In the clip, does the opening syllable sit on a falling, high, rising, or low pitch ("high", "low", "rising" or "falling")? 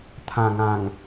low